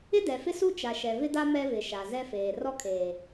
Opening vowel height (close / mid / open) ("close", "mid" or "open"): close